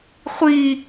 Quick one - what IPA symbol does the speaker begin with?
χʷ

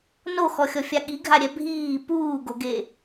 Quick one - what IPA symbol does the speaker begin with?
n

